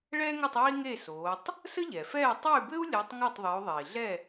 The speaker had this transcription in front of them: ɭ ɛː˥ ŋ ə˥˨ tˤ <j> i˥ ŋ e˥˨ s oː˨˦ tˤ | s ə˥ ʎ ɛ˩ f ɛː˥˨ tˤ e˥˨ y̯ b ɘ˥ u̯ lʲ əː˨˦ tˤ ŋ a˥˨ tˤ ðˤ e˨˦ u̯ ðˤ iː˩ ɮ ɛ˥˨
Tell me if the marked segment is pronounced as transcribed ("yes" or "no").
yes